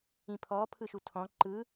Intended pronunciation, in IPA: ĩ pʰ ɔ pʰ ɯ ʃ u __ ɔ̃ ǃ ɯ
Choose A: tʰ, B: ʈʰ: A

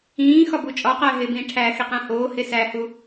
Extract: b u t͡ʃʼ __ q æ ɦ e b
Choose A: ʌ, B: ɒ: B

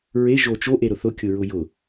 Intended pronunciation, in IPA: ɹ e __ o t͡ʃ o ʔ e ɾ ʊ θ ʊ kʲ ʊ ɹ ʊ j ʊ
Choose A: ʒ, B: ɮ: A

